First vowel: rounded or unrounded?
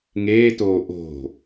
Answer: unrounded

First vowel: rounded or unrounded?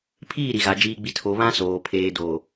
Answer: unrounded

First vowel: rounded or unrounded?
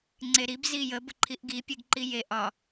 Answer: unrounded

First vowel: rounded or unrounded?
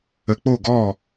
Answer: unrounded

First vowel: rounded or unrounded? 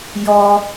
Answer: rounded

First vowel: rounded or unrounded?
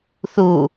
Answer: rounded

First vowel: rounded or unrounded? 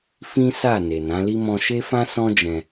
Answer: unrounded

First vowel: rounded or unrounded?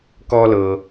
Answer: rounded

